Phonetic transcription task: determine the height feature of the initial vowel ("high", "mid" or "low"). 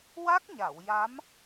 low